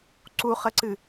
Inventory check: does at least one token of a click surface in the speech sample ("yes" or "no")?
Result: yes